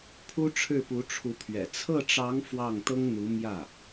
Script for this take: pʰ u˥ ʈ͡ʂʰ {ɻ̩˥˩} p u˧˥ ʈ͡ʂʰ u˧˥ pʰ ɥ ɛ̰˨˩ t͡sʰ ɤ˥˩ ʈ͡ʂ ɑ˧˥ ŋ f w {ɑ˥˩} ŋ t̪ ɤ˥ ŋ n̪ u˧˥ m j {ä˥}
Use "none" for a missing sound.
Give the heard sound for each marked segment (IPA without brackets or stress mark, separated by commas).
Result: ɻ̩˥˩, ɑ˥˩, ä˥˩